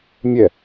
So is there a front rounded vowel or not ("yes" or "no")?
no